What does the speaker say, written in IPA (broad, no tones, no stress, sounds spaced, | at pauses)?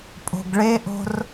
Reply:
pʼ o̤ ɡ ɭ e ʔ o̤ r